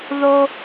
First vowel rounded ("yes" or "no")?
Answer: yes